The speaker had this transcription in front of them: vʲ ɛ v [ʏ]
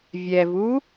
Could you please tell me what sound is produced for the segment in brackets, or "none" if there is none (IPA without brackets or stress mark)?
u